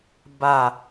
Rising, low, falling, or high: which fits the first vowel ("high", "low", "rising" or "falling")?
low